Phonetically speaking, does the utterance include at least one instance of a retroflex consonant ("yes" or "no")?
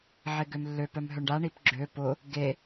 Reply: yes